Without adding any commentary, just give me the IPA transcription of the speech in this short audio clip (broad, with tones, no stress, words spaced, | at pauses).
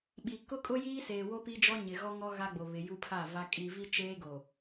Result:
ɓi˨ kʊ˦kʼʊ˦ jiː˦seː˨wo˦ pi˦d͡ʒɔ˦ ɲɪ˨ ɣɔ˦ŋɔ˦ ɣa˦ɡ͡bo˨ βɪ˨ju˦pʰa˦˨va˦ kʼi˨vi˦t͡ʃeː˦ɡo˨